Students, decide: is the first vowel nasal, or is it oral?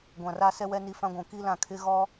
nasal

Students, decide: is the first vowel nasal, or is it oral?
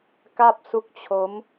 oral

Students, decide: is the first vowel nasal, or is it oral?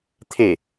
oral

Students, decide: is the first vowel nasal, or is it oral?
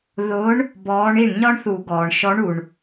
oral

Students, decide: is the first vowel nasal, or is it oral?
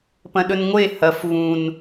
nasal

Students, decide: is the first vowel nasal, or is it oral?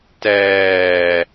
oral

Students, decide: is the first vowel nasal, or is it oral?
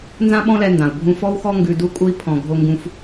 nasal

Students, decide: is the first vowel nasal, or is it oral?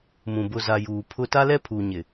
nasal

